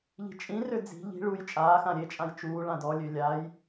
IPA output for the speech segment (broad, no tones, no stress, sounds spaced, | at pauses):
ʎ i̤ t͡ʃʼ ĩ r ø d͡z i̤ ʎ i̤ ɭ u j t͡ʃʼ aː x ã ɾʲ e t͡ʃʼ ã j t͡ʃ uː ɭ ã d ɔ lʲ ø lʲ a j